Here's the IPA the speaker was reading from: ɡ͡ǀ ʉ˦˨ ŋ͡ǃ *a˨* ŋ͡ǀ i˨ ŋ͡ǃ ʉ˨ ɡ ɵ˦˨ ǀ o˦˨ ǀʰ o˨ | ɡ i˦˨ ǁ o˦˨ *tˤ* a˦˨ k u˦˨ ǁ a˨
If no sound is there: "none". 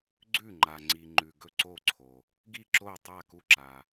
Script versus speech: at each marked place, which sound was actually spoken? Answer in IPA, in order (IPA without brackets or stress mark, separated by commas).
a˨, tˤ